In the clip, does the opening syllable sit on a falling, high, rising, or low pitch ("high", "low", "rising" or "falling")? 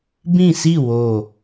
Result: falling